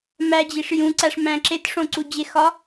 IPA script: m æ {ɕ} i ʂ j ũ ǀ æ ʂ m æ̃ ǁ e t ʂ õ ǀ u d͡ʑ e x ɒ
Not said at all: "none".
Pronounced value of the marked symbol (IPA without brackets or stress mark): d͡ʑ